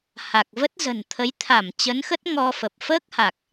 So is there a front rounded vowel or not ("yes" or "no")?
no